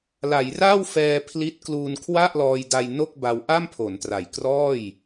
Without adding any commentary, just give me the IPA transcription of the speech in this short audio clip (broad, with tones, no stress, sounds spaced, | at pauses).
l a˩˦ j r a˥˩ w f ɛː˧ pʰ l i˦˥ t̚ k l uː˧ n kʰ w a˥˩ ʔ l ɔː˧ j d a˧ j n o˥˩ k̚ b a˧ w ʔ a˥˩ m pʰ o˩˦ n t r a˨˩ j k r ɔː˥˩ j